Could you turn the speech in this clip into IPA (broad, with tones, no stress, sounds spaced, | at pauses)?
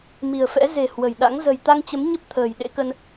m i̤˨˩ ə̯ f ɛ̰˧˥ z e̤˨˩ h w ə̤˨˩ j ɗ a̰˧˥ ŋ z ə̤˨˩ j t̪ a˧ ŋ t͡ɕ ə˨˦ m ɲ ə˦˥ p̚ t̪ʰ ə̤ː˨˩ j ɗ ḛ˧˥ k ə˧ n